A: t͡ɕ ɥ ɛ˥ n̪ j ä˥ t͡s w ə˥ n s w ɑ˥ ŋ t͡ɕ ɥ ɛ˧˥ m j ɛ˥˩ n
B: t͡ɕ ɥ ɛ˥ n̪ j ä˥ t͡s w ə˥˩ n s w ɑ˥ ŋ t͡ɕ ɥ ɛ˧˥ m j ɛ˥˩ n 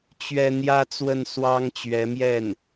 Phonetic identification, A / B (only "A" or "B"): B